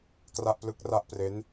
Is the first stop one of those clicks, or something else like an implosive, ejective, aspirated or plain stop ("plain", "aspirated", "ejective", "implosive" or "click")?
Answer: plain